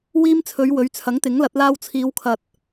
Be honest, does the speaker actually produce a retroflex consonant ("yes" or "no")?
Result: no